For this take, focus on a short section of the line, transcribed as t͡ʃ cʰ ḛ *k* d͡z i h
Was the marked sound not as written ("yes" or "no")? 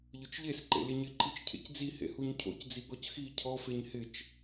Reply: yes